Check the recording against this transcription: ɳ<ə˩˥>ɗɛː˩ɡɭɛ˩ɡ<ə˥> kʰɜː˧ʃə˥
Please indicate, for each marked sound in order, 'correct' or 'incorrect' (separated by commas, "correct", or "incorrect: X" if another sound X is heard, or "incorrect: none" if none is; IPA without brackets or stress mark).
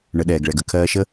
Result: correct, incorrect: ə˩˥